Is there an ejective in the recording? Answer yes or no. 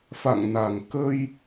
no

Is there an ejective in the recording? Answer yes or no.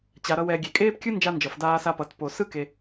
yes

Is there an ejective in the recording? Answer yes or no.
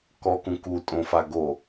yes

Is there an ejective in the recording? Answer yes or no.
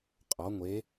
yes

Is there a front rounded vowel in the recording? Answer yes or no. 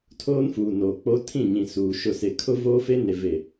no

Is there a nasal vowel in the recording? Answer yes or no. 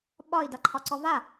no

